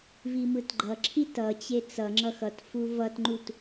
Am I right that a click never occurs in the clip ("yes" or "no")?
no